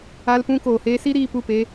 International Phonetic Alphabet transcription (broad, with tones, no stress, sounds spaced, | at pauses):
a˧ l p ũ˧ k oː˨ h eː˧ s i˦ ɾ iː˧ p u˦˨ p e˦